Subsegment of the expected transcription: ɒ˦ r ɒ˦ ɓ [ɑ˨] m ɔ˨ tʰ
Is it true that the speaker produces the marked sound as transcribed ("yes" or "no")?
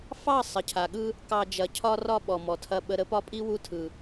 no